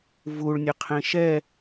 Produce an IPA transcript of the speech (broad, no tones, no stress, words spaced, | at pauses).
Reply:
vuɭnʲəqʰẽ ʃɛ